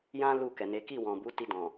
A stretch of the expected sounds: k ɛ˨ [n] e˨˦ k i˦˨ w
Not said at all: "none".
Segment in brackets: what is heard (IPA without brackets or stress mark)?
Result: n